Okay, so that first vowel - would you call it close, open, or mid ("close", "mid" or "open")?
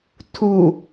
close